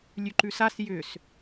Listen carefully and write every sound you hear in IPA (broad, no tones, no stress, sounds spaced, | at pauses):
lʲ ʉ ǃ ʉ s a s j ʏ s